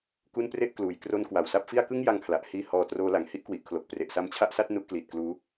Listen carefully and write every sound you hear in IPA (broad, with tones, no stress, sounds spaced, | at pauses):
k u˥˩ n p r e˥˩ ʔ k l uː˨˩ j k r o˦˥ n k w a˨˩ w s a˦˥ p̚ f i˥˩ a̯ k ɯ˥˩ ŋ j a˧ ŋ kʰ l a˨˩ ʔ h iː˧ h ɔː˧ t r oː˦˥ l a˨˩ ŋ h i˥˩ ʔ k w i˨˩ ʔ kʰ l o˨˩ k̚ p r e˨˩ ʔ s a˧ m t͡ɕʰ a˥˩ ʔ s a˥˩ t̚ n u˥˩ ʔ k l iː˨˩ t̚ k l uː˦˥